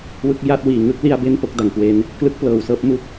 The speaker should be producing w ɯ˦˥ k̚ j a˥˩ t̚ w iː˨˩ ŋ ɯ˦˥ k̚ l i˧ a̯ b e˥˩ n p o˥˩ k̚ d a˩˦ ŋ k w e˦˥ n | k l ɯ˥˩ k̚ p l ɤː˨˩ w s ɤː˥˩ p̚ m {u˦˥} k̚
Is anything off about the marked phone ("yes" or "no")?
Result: yes